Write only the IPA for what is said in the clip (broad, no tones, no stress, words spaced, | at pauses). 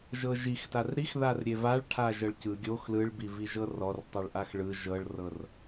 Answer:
ʒɤʒixtar ɾixðarɾʲe vaɭʈʰa ʒɤɭcɯ ɡʲox lɯɭbi viʒɤrɔr tˤɯɭʔaxɭɯ ʒɤɭrɤr